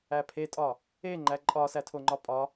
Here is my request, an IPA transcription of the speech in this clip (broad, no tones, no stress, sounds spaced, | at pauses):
æ pʰ e tʼ ɒ | e ŋ͡ǃ æ ǃʼ ɒ s æ tʰ o ŋ͡ǃ ɒ pʼ ɒ